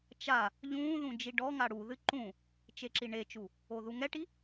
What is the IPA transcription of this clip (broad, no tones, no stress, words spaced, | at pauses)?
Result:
t͡ʃa | ʎũːðũ d͡ʒiɖɔŋa ɽuðɨ ǃũ | t͡ʃeǁiɳet͡ʃu | oðuŋɛʈi